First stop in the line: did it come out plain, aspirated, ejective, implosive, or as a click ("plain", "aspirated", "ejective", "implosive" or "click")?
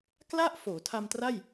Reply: plain